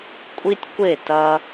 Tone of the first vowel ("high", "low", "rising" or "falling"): high